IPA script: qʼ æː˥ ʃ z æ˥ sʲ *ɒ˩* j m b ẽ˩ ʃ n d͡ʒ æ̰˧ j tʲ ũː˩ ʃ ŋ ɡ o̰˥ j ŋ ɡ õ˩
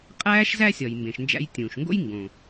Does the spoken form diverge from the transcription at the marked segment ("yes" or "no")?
no